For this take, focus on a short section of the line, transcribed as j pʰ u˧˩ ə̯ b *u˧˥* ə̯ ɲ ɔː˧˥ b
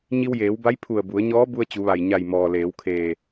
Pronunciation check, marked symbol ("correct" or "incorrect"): incorrect